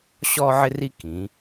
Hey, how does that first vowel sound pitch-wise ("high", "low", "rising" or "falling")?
high